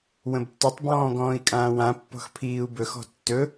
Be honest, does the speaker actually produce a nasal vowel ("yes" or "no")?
yes